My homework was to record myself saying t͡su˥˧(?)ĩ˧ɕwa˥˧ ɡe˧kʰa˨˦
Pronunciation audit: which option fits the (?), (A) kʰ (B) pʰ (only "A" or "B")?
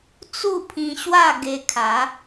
B